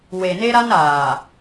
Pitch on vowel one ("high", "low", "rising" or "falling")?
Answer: low